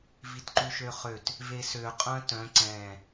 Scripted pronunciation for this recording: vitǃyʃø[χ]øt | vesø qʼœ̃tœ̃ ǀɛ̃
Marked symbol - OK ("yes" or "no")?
yes